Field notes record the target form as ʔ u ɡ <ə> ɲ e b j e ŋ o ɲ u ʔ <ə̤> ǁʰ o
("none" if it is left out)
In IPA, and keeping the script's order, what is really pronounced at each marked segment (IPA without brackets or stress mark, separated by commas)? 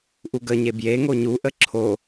ə, ə